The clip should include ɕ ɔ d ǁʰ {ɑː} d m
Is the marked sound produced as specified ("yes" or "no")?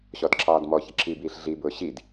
yes